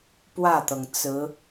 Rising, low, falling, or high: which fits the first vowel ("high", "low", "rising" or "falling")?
falling